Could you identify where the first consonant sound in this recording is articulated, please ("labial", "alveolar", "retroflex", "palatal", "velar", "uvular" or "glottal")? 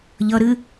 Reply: palatal